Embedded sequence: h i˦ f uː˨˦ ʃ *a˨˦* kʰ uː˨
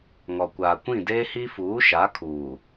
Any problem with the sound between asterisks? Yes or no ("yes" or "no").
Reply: no